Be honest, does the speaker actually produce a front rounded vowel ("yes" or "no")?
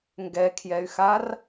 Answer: yes